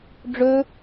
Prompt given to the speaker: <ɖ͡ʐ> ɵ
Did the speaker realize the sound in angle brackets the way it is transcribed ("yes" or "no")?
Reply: yes